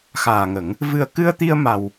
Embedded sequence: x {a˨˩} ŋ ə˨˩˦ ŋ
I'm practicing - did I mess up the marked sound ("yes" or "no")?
yes